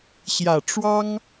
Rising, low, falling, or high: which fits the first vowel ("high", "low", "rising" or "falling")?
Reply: low